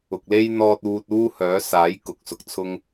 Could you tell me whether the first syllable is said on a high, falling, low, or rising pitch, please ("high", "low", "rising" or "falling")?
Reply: low